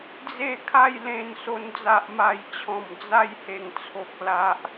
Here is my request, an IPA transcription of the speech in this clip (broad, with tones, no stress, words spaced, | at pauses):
d͡ze˥˧ kʰa˥˧jlẽ˧nso˧n d͡za˨ʔma˨˩jt͡ɕʰɔ̃˨˩m d͡za˥˧jhe˨˩ŋt͡sʰo˨k̚ la˨ʔ